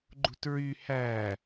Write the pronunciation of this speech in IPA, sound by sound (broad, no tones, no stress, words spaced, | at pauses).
ɡ͡ǃṳtɹy hæ